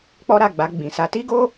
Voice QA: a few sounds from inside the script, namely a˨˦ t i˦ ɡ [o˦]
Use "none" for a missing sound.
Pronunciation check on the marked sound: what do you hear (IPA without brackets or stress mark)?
o˦